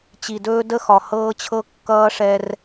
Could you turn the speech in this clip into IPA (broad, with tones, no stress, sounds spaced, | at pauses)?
t͡ɕ i˨ d ɵː˦ d ə˦ x ɒ˨ h ɤː˦ t͡ɕʰ ɤ˦ kː ʌː˦ ʂ ɛ˦ r